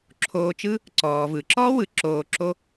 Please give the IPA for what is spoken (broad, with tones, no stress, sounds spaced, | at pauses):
ǁʰ oː˧ t͡ʃ ɯ˥ | ǀ ɔː˩ v ɯ˩ ǁ ɔː˥ w ɯ˩ ǁ oː˧ ǁ o˥